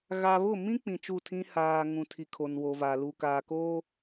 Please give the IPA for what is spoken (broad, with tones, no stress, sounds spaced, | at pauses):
ɣ a˨ β ʊ˦˨ m ĩ˦ k͡p ĩ˨ t͡ʃ u˦˨ tʰ ĩ˦ h aː˨ ŋ ũ˨ tʰ i˨ kʰ o˨ n w o˨ v a˨ l u˨ k aː˨ k oː˦